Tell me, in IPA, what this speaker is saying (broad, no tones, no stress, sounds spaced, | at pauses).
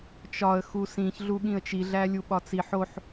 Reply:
t͡ʃ ɒ ə̯ x u s ĩ ç ɮ u ɠ ĩ ə̯ t͡ʃ i ɮ æ lʲ u ɓ ɒ t͡s i ħ o ħ